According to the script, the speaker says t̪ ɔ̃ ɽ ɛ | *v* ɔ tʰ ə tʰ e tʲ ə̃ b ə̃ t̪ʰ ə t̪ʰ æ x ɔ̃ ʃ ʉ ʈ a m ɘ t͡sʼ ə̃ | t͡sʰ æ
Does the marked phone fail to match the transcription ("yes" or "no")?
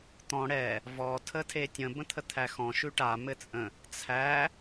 no